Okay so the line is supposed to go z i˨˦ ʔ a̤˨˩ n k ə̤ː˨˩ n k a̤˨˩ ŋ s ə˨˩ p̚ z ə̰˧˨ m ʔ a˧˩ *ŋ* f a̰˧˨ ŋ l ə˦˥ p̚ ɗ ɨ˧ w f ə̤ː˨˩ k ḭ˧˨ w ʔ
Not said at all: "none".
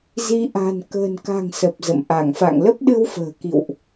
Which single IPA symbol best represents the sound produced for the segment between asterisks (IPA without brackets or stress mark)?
ŋ